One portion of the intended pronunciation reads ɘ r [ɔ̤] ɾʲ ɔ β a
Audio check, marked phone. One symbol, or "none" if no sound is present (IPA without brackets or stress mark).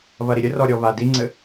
ɔ